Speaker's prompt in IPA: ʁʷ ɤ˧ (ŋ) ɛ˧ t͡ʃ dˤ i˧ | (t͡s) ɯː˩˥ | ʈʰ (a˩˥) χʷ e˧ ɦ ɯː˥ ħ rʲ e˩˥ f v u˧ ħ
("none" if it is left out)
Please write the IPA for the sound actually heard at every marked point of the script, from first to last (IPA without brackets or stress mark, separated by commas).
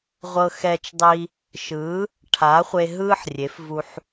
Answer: x, ʃ, a˩˥